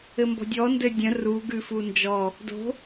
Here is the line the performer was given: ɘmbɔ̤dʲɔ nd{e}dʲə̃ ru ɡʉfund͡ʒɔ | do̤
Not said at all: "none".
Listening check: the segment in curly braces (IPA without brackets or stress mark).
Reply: ɘ